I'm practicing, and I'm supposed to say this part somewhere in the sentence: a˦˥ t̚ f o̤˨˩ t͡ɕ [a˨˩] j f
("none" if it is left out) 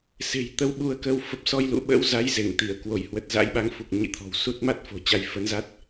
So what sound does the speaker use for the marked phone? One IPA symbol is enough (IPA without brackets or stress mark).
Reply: a˧